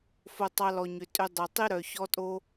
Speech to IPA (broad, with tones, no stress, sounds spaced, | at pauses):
f o˧ tˤ ɑ˧ l ɔ˨ ɲ ʏ˨ tʼ ʏ˧ dˤ o˨ tˤ i˦ ɾ œ˨ ç ɔ˦ tʼ o˦